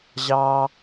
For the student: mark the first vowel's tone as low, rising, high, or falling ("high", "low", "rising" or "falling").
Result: high